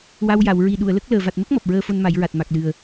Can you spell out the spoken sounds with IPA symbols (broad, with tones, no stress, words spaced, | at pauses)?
wa˧wja˨˩˨w ɹi˨˩ ɗu˨˩˨ə̯lə˦˥k̚ ləː˨˩va˨˩t̚mə˦˥k̚ mɔ˨˩p̚ɹəː˧fo˧n ma˨˩˦jɹa˨˩t̚ ma˨˩k̚lɨ˨˩ə̯